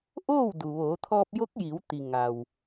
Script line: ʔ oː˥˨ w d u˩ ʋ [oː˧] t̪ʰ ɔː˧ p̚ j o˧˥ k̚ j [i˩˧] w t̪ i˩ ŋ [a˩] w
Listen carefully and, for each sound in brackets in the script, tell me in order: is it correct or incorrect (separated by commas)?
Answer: incorrect, correct, correct